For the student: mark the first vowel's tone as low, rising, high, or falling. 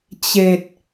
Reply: low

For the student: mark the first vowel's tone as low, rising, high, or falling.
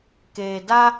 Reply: low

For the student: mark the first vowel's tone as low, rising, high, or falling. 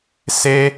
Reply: high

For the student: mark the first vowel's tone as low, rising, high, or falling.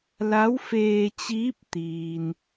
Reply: rising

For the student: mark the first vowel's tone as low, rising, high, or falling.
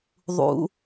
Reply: high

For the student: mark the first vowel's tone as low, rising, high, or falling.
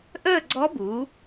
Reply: falling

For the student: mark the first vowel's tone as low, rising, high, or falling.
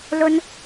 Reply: high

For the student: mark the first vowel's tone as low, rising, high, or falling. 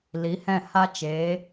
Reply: rising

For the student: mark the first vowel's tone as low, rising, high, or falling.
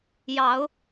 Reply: rising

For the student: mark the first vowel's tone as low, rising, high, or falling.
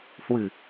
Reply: low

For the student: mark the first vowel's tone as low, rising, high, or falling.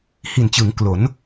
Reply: low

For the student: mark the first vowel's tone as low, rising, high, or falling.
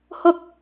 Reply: high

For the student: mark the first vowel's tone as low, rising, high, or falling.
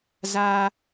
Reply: high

